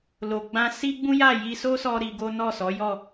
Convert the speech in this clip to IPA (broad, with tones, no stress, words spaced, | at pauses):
lo˨ɡ͡bã˧ si˦ɡ͡bũ˦ja˦˨ ji˧so˦sɔ˧ ɾi˧ɡo˦ nɔ˦˨sɔ˨˦jɔ˦˨